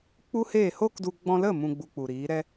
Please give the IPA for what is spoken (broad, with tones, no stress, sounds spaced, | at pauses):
k͡p u˦ h eː˦˨ h o˦ k d u˧ ɡ͡b ɔ̃˧ l ə˦˨ m ũ˧ ɡ͡b u˧ k͡p u˨ ɾ iː˨˦ ɾ ɛ˧